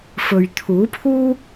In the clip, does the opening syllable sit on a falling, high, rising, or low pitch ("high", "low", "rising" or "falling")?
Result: low